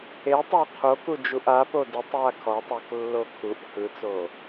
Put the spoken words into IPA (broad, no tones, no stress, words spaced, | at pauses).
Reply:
etˤow qʰokud͡ʒuʔ apo dɯtˤwa kʰɔtˤoklːo kʰuʔ hɯt͡so